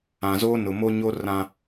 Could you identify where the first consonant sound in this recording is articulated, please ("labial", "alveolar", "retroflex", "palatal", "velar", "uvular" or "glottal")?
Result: alveolar